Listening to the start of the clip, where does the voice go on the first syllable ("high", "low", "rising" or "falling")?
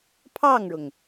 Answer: falling